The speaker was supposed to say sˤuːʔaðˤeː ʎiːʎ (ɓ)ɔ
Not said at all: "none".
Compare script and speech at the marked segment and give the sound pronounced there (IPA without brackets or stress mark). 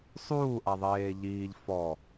f